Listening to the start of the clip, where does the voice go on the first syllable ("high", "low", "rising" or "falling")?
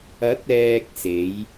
rising